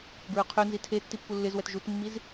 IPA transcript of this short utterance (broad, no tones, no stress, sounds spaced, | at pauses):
b ɹ œ qʰ œ n z i tʰ e tː i pː u lː ɪ z w ɛ t ʒ u t mː i z